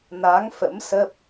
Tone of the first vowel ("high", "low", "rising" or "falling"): rising